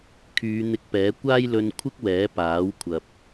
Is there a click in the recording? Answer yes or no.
no